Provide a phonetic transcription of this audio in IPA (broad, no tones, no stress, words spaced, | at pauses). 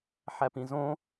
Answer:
ħæpĩzõ